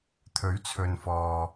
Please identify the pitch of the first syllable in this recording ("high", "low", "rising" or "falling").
rising